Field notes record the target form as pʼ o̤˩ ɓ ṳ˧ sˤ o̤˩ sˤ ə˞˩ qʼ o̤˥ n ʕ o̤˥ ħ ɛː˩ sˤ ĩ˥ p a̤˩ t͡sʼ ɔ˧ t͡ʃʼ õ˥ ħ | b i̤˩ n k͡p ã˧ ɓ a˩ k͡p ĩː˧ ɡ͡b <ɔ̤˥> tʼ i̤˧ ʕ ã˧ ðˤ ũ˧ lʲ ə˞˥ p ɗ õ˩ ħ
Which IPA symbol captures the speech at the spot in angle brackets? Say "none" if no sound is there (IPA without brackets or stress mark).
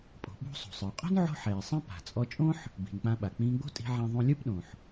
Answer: o̤˥